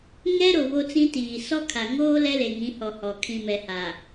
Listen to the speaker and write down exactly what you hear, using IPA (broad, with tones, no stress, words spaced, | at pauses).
ŋɛ˦ɾo˨ βo˦t͡sĩ˦tiː˨ sɔ˦kʰa˨ ŋoː˦ lɛ˦le˨ŋĩ˨˦hɔ˨ hɔ˨ kʰĩ˨mɛ˨ha˨